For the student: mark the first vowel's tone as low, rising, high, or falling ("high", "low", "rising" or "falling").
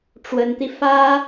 rising